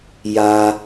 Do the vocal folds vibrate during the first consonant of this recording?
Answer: yes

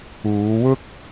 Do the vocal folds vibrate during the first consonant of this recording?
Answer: yes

